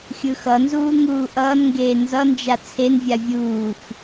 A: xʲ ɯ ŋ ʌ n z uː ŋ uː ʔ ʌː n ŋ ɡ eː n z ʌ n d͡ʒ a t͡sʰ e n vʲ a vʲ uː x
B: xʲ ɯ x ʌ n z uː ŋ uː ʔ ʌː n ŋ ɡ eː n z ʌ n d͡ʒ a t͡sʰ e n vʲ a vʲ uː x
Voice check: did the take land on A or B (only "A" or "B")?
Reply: B